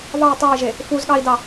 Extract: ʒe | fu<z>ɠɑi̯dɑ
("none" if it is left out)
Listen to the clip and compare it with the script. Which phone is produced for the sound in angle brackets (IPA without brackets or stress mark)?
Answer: z